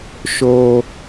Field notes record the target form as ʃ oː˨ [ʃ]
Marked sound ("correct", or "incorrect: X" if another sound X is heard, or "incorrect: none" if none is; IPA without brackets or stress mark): incorrect: none